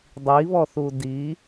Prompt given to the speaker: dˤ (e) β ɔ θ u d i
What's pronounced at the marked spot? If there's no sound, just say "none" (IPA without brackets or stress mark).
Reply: i